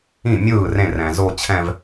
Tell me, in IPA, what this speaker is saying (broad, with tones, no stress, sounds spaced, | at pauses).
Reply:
ĩ˥˩ mʲ ɯː˥˩ r ẽ˥˩ r ɛ̃˨ z o˥˧ t͡ɕʰ ɛ̃˥˧ v